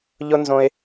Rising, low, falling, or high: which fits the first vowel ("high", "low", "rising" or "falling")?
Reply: high